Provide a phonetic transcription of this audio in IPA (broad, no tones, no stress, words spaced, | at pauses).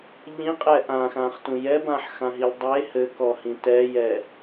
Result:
ʎĩqʼɛ ʔãxãχtũ jɛbãħxãɦilʲ dˤe hɘkɔhĩ tɛjɛ